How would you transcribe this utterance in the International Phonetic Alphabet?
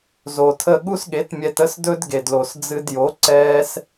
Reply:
z o˨ tʰ ə˦˨ ɠ u˦ s ɠ e˨˦ t mʲ ɛ˧ t ə˦ s d ɵ˦ d ɡ e˨ d l o˨ s d͡z ɨ˧ d j o˨˦ ǀ ɛː˦ s

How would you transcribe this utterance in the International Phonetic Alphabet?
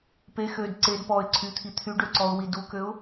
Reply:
p e x ø d ǀ e d p ɔ ɪ̯ ǀʰ y t̪ʰ i t̪ʰ y ɖ ø ǀ ɔ ʊ̯ w i d u k ø ʊ̯

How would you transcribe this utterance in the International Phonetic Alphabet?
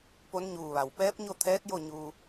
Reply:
p o˧˥ n ɲ uː˧˩ ʋ a˩ w p ɛː˧˥ p̚ ɲ o˥˨ t̪ʰ ɛː˧˥ t̚ j o˥˨ ɲ uː˧

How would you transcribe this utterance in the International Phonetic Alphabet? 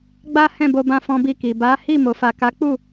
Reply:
ɡ͡b a˦ h ɛ̃˦˨ b o˧ b ã˧ f ɔ̃˧ b i˧ k i˨ b a˨˦ h i˦˨ m o˨ f a˨ k a˨˦ k͡p u˦˨

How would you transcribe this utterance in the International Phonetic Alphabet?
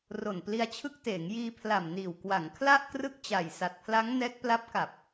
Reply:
r o˨˩ n p l i˧ a̯ t͡ɕʰ ɯ˦˥ k̚ t eː˩˦ ŋ j iː˧ pʰ l a˨˩ m n iː˨˩ w k w a˩˦ ŋ kʰ l a˥˩ ʔ k r ɯ˥˩ k̚ t͡ɕ a˨˩ j s a˨˩ t̚ pʰ l a˦˥ ŋ n ɛː˦˥ k̚ p l a˦˥ p̚ k a˨˩ p̚

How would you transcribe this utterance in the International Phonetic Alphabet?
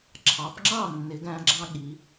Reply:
ǁʰ ɑ˨˦ p ŋ͡ǁ ɑ˥˨ nː ɪ˨˦ ɡ æ̃˦ ɡ͡ǁ ɑ̃˦ ɠ i˨˦

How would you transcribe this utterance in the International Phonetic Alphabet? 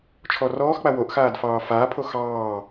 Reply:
t͡ʃʰ ɔ r ɔː x k͡p a w o ʔ x aː d f ɑː f aː pʰ o x ɑː

